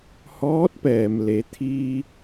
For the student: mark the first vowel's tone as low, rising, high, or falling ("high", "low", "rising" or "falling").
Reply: rising